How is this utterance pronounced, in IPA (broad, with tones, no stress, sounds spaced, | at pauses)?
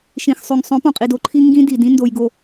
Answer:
ʃ ĩ˨ x sˤ ʉ˨ ŋ sˤ õ˨˦ p õ˨ qʼ i˨ d o˦ ǃʰ i˦ ŋ ɡ ĩ˦ d i˨ d ĩ˦ n d o˨ j ɡ o˨